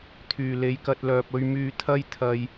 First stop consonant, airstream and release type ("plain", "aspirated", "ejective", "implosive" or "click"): aspirated